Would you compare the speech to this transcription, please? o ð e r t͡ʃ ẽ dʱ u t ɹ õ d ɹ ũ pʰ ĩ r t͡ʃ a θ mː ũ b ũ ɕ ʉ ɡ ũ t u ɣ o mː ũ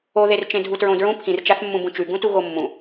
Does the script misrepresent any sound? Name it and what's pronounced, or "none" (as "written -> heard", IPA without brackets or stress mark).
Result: ɕ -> t͡ʃ